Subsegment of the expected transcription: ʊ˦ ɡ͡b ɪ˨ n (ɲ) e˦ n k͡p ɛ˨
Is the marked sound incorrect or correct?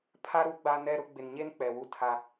correct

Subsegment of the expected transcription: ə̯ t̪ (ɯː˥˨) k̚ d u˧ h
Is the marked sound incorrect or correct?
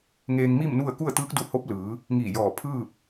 incorrect: ɯː˧˥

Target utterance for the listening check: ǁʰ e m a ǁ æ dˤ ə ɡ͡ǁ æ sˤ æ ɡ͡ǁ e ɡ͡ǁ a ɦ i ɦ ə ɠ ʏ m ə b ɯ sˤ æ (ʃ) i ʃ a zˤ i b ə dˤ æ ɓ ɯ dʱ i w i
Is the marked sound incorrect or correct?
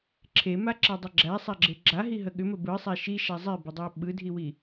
correct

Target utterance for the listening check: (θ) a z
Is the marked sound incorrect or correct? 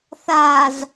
correct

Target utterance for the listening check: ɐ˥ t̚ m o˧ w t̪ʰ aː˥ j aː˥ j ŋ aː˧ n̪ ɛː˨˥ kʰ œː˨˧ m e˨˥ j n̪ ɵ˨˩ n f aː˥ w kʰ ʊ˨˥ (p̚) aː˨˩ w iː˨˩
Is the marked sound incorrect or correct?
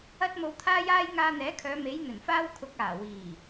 incorrect: k̚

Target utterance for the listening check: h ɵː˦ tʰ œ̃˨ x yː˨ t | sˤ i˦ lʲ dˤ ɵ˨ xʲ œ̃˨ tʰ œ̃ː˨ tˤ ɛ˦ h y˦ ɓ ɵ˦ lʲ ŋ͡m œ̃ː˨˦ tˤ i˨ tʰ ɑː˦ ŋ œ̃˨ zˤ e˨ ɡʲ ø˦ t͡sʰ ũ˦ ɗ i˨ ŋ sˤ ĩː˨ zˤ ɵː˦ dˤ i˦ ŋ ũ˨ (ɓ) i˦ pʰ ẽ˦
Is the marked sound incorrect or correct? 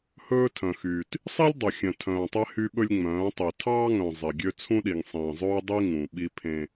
correct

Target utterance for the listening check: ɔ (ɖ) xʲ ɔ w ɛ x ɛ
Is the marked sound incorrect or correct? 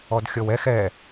incorrect: d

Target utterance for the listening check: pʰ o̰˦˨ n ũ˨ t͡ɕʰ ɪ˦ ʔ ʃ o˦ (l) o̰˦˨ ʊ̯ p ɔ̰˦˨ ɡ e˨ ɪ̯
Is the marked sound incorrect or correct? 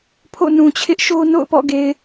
incorrect: n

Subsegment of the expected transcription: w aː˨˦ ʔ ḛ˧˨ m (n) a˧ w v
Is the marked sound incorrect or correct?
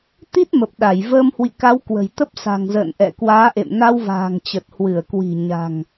correct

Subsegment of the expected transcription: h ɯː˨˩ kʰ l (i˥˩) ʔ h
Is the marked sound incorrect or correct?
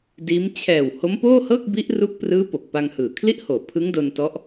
correct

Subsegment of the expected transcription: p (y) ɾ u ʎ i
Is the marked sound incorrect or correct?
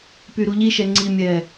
correct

